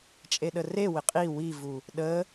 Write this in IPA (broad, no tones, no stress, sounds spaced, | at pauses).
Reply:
t͡ʃʼ e ɗ ə r e w ɪ qʼ i w i v u | ɗ ə